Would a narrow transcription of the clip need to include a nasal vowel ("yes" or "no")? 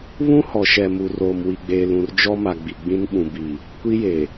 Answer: yes